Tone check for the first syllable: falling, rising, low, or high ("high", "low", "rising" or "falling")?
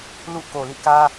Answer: falling